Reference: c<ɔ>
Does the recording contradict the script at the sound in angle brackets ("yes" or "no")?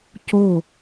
yes